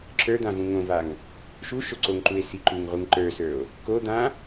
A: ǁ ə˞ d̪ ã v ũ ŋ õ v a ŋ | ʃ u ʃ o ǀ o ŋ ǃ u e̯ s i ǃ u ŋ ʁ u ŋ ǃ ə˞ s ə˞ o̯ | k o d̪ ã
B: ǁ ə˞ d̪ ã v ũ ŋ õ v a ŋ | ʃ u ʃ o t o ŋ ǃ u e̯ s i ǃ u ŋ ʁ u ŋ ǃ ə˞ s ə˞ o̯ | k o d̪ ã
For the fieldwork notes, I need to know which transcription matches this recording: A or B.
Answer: A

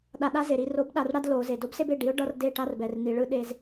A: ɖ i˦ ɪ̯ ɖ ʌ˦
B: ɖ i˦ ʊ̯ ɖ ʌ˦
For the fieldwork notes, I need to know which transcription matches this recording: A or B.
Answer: B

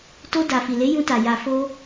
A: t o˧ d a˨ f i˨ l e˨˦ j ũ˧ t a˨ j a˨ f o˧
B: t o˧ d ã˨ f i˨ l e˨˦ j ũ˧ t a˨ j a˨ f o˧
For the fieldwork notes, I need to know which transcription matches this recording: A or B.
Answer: A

